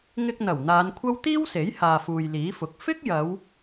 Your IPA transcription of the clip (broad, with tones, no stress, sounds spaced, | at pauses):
ŋ ɪ˧ k̚ n̪ ɐ˨˩ w n̪ aː˨˧ n kʷʰ ɐ˥ w t̪ iː˥ w s e˨˥ j h aː˨ f uː˨ j l iː˨˥ f ʊ˨ k̚ f ɪ˥ k̚ j ɐ˨˧ w